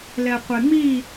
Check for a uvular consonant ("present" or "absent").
present